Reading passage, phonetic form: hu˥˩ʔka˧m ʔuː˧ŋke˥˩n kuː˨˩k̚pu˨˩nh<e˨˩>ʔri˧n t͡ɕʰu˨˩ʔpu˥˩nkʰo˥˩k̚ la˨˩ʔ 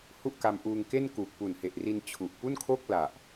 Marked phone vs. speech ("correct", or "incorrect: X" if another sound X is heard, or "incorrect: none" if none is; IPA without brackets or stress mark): correct